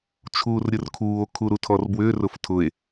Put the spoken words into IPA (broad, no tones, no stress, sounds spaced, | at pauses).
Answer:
t͡ʃʰ uː r ɾʲ ʊ r kʰ uː o̯ kʰ u ɾ u tʰ ɔ r b w ʏː r ʊ f tʰ ʊ e̯